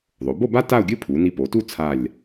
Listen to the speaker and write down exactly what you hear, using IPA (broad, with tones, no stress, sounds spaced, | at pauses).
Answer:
ðˤ o˩˧ b o˥˧ b a˥ t a˥˧ ʊ̯ ɡʲ ɨ˥ pʰ u˩˧ n i˧ p o˩˧ t u˥˧ t͡sʰ a˧˩ lʲ